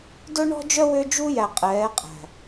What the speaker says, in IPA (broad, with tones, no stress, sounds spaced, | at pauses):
d ɵ˦ ɳ ɔ̤˦ d͡ʒ œ˦ w ø˦ d͡ʒ u˦ j æ˨ qʼ ɛː˨˦ qʼ æ̤˨